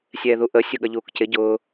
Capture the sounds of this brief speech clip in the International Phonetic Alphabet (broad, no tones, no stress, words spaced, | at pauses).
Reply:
sʲɛːðuʔə sʲʊɠʌʎuːkcɪ ɟʊː